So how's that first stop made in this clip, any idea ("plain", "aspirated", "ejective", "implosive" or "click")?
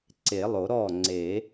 click